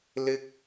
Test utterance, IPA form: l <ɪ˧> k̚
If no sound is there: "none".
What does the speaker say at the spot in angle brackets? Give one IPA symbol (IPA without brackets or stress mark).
ɪ˥